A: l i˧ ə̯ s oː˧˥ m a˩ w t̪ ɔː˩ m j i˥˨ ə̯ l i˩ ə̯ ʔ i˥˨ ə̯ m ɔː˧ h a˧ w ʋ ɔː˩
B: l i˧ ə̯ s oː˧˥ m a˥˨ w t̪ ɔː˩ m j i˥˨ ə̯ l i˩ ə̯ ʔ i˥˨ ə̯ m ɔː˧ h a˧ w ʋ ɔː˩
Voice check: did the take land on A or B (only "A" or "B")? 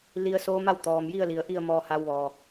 B